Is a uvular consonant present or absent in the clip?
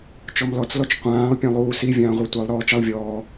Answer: present